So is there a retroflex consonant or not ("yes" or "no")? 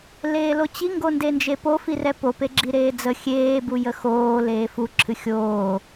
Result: no